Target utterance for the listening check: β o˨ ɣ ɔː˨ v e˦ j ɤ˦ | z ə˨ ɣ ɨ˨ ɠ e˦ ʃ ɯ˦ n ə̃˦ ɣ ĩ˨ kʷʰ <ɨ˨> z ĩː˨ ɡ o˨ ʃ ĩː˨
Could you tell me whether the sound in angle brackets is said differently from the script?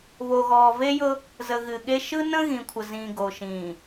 yes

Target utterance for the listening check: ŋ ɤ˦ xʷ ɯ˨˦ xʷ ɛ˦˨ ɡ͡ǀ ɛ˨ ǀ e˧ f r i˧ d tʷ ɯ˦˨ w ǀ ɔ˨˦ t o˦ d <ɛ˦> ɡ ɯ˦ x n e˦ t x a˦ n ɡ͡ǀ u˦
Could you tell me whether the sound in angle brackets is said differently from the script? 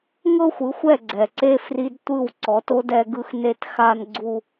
no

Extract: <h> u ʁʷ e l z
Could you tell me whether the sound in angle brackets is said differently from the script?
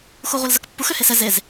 yes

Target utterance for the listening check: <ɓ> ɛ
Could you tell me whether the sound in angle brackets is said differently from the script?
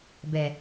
yes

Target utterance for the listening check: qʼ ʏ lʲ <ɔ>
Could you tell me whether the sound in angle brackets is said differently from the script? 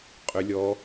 no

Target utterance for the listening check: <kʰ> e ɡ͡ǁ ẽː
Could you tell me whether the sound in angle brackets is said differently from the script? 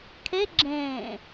no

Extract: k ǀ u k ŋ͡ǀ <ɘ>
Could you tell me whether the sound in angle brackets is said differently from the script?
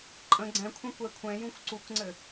no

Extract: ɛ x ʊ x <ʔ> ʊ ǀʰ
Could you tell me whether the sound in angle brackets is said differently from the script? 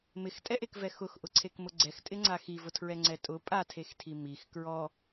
no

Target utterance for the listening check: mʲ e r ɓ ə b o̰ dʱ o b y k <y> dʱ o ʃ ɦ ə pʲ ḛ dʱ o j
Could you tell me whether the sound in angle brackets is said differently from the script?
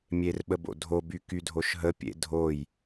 no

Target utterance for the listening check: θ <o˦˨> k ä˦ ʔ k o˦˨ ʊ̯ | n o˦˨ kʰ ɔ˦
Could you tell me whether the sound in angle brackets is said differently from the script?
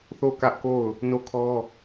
no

